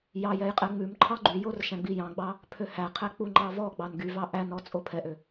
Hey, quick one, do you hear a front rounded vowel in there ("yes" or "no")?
yes